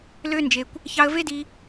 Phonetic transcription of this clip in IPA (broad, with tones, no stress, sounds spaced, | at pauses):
l ø˦ n d͡ʒ e˧ kʷ | ç ɑ˧ ə̯ v e˦ d i˧